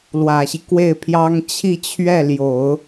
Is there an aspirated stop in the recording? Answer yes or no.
yes